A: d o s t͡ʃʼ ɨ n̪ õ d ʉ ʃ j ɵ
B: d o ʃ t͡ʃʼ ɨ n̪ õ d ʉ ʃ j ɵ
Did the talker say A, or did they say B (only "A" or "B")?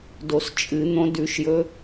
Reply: A